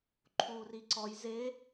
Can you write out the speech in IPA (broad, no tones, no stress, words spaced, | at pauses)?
ǃʰuːriǀɔj ze